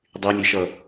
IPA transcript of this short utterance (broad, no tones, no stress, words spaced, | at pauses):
dˤymʲeʃʌ